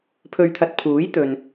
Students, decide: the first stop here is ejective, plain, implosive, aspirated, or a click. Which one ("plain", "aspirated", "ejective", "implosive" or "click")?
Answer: aspirated